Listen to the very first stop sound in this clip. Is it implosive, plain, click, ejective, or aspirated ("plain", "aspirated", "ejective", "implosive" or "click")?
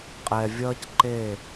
ejective